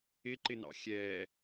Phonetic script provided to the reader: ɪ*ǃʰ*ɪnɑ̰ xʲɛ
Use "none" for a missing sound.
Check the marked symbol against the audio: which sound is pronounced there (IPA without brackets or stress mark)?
ǃ